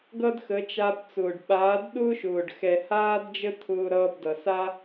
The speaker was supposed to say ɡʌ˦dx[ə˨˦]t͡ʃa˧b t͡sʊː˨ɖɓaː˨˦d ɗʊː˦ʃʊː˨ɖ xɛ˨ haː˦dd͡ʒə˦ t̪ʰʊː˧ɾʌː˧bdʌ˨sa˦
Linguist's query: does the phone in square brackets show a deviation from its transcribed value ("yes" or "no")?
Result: no